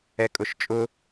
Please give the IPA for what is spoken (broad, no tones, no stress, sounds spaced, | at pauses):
ɛ kʼ ʊ ʃ t͡ʃʼ ʊ